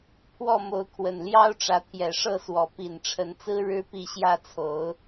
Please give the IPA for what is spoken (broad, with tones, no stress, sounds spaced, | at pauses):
pʰ w ɔ˥˨ m o˨˦ ʊ̯ kʰ w ə˨˩ n l j ɑ˦ ʊ̯ ʈ͡ʂ ä˨˦ t̪ʰ j ɛ˨˩ ʂ ɤ˥˨ s w ɔ˨˦ p i˨˩ n ʈ͡ʂʰ ə˨˦ n t͡s ɹ̩˦ ɻ ɻ̩˦ p i˥˨ ɕ j ä˥˨ t͡sʰ o˨˦ ʊ̯